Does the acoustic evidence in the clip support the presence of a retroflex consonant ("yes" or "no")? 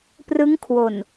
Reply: no